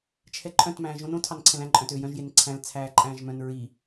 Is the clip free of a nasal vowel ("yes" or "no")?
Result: no